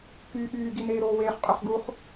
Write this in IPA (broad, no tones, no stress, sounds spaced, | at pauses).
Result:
k yː ɠ yː ɡ i n eː ɾ oː w eː χ qʼ ø χ ɡ u χ